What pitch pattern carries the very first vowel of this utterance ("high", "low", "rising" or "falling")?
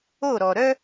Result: falling